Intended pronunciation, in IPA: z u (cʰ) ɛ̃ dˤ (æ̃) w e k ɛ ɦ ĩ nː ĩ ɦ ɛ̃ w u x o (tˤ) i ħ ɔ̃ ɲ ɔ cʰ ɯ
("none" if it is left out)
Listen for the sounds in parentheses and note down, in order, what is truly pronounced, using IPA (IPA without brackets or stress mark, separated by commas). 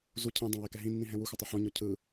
cʰ, ã, tˤ